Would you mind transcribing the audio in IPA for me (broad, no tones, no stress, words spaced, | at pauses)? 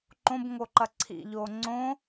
ǃõbŋo ǃɐǀʰḭʎoː ŋ͡ǀõ